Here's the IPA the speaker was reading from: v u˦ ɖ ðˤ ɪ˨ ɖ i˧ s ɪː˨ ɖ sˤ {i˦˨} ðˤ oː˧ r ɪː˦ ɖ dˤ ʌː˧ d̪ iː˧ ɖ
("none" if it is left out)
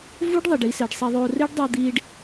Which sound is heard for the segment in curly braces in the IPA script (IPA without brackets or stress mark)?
i˧